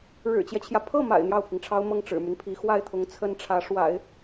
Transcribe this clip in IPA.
ɻ ɻ̩˨˩ t͡ɕ j ɛ˦ t͡ɕʰ j ä˩ pʰ ɤ˥˩ m a̰˨˩ ɪ̯ n̪ j ɑ˥˩ ʊ̯ pʰ i˩ ŋ ʈ͡ʂʰ ɑ˥ ʊ̯ m ɤ˥˩ ŋ ʈ͡ʂ ɻ̩˨˩ m y˦ n pʰ i˧˥ x w a˥˩ ɪ̯ t̪ʰ ʊ˧˥ ŋ t͡sʰ ə˥ n ʈ͡ʂʰ ä˧˥ ʂ w a̰˨˩˦ ɪ̯

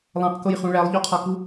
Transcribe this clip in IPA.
lˠ æ̃ q k o j χ ũ ɭ æ lˠ ʎ o qʰ ɒ k u

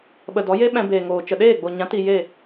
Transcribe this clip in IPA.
ɓ ə˨ d ɔ˨˦ j e˦ ɓ ɛ̃˧ b eː˨ ŋ oː˨ t͡ʃ ə˨ ɗ eː˦˨ ɡ͡b o˨ ɲ ã˨˦ t i˧ j e˦˨

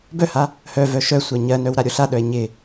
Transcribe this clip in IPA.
b œ h a | h œ v œ ʃ œ sʷ ɜ ɲ ɜ n œ w ɾ a ɾʲ o ɬ a ɗ œ e̯ ɲ ɪ

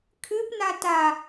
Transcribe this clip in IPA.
kʰ ɨ p n a t a

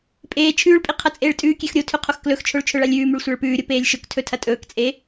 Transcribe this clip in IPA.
pʼ eː t͡ʃʰ ʉː ɭ pʼ i qʰ ɐ t͡sʼ eː ɭ tʼ ʉː kʲ e x ɾʲ o tʰ ʉ qʰ o x k l ɵ x t͡ʃʰ o ɭ t͡ʃʰ ɵ ɭ a lʲ ʉː m ʉ ɭ sʷ a ɭ p ʉː ɾʲ o p eː lʲ ʃ ɵ k tʰ ɵ tʰ ɐ tʼ ɵː k t͡sʼ e

